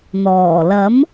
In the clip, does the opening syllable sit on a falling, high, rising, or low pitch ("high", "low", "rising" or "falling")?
low